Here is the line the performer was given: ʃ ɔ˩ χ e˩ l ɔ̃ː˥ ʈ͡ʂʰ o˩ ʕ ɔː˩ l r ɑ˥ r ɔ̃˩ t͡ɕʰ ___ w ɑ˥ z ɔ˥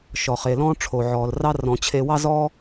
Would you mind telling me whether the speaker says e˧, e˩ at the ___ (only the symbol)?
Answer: e˧